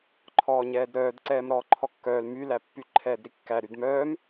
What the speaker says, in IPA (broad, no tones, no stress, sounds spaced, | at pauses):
ǃʰ ɔː ɲ ɛː d ɾ œː d ǀ ɛː m ɾ ɔː ǃʰ ɔ kː œː l m y l æ pː y ǃʰ ɛː d ɾ i kː æ ɾ y d m œː m